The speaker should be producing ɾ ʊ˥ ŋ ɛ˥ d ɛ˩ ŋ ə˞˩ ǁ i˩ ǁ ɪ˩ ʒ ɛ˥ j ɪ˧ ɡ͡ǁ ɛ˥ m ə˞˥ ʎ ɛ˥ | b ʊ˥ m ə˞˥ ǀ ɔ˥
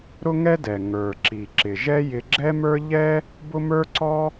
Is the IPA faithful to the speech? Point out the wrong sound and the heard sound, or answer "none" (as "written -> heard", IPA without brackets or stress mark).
none